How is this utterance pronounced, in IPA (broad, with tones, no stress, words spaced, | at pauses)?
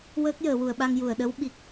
wəː˦˥k̚jəː˨˩˨wu˨˩˨ə̯ɓa˧ŋ ju˨˩˨ə̯ɗə˧˥w ɓi˨˩k̚